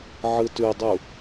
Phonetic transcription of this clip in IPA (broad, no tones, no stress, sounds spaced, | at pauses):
ʕ ɯ t ʉ dˤ u